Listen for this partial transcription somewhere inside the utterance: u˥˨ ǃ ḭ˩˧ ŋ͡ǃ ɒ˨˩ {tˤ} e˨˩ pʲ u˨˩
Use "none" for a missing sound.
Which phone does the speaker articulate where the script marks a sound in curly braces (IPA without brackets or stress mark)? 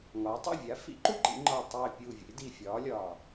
tˤ